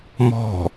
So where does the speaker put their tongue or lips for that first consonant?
lips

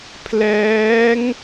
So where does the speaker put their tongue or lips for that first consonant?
lips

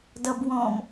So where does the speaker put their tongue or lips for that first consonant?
tongue tip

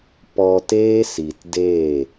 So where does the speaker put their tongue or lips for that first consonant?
lips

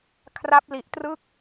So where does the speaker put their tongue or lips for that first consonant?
velum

